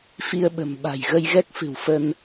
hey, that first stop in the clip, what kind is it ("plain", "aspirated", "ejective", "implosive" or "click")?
implosive